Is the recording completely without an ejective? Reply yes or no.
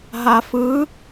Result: yes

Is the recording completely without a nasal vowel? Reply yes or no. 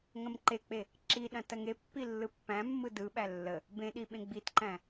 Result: no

